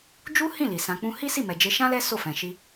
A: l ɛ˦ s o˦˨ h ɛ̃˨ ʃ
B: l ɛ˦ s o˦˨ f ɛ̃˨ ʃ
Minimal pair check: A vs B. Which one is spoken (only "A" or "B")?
B